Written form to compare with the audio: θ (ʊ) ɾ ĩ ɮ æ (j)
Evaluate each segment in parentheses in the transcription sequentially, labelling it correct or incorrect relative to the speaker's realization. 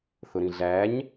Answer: correct, incorrect: ɲ

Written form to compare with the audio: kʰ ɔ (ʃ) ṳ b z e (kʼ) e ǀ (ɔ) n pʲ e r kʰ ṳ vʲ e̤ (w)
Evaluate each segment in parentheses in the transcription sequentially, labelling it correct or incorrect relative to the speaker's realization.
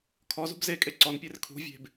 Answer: incorrect: z, correct, correct, incorrect: b

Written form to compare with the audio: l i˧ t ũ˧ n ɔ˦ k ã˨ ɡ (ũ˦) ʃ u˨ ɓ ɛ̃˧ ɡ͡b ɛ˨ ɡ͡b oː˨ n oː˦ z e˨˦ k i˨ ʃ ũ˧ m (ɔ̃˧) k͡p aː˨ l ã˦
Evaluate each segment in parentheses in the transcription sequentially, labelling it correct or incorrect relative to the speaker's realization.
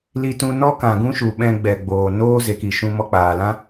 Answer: correct, incorrect: ɔ˧

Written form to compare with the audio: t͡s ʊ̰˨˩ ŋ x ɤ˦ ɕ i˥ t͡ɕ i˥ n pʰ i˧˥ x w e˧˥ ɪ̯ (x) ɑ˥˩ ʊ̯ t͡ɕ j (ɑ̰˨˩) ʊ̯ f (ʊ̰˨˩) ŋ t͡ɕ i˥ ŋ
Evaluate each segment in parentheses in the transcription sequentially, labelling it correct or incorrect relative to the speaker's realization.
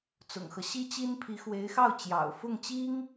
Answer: correct, correct, incorrect: ʊ˥˩

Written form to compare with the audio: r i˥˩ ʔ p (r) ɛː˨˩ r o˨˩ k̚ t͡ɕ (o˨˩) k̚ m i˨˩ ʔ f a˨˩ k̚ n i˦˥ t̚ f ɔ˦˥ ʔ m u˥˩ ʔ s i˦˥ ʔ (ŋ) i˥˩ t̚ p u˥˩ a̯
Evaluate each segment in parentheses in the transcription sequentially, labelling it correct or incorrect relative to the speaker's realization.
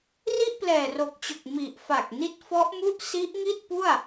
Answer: incorrect: l, correct, correct

